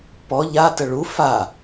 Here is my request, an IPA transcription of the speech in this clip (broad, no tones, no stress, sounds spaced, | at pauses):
p ɔ ʎ a t ə ɭ u f a